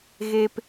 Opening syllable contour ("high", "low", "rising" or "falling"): high